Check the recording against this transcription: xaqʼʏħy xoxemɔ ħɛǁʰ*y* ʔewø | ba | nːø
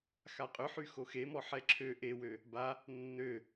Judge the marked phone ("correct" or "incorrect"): incorrect